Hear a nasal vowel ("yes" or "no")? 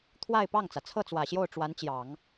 no